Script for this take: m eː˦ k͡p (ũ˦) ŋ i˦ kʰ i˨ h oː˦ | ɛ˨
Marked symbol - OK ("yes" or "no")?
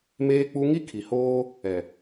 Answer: no